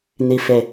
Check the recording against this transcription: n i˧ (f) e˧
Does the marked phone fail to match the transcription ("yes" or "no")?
no